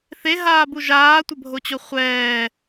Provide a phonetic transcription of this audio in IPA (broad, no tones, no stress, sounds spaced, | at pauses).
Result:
θ e ɦ aː b u ʒ aː tʷ ə bʱ o t͡ɕ o χʷ ɛː